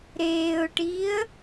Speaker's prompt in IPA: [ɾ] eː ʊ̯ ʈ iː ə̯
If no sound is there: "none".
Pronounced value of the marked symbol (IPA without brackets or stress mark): ɾ